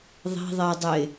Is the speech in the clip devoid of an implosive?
yes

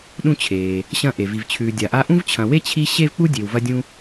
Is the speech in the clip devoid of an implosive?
no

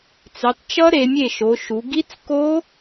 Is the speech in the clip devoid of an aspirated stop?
yes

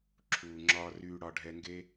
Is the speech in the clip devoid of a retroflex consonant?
no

